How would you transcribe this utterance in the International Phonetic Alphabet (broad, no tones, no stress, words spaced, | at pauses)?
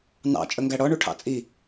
nɑ̰ t͡ʃʼəŋɡæɽɔ ɳuʈʰɑ̰t͡sʼi